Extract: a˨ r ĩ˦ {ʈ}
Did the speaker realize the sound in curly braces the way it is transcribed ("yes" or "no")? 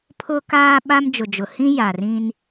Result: no